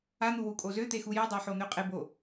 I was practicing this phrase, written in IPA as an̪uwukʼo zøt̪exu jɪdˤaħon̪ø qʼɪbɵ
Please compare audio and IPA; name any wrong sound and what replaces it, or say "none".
ɵ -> o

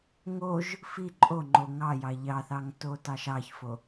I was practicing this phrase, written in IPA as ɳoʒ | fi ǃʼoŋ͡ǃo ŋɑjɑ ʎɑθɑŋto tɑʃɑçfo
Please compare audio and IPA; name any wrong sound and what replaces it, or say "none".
ɳ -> ŋ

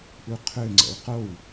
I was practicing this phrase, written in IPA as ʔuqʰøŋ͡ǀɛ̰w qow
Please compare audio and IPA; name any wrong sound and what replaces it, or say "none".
none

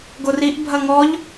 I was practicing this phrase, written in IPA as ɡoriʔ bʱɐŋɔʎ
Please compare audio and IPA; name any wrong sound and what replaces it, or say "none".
none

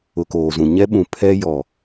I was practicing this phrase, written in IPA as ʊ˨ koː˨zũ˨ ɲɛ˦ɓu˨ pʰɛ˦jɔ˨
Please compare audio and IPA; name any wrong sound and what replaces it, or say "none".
u˨ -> ũ˨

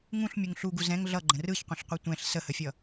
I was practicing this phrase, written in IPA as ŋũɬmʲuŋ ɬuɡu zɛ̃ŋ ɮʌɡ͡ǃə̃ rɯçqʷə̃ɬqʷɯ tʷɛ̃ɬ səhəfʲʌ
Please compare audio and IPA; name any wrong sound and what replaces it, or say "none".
none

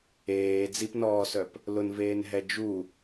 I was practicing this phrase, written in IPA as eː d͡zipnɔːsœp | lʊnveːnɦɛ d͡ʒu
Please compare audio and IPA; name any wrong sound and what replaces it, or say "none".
none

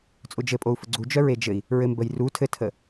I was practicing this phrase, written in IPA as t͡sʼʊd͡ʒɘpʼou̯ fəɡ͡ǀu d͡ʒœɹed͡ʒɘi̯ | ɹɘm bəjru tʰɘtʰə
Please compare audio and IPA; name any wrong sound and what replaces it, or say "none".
none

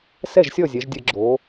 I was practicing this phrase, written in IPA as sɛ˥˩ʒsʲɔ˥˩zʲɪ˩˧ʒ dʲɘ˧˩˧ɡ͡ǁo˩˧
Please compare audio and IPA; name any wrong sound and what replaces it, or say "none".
ɪ˩˧ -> ɛ˩˧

